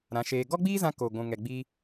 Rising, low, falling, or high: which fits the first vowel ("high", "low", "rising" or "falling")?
rising